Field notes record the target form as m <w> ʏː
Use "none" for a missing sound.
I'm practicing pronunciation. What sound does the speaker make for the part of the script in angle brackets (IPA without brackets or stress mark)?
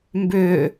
b